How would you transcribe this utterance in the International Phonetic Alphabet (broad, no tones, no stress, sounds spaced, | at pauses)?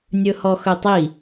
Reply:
nʲ ɵ h ɔ x ɵ tˤ i